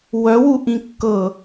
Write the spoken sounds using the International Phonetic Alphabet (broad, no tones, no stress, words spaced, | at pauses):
wœwuʔĩ kːɤ